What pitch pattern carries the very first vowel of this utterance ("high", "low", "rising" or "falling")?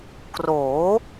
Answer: rising